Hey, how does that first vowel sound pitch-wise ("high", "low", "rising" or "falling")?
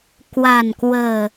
low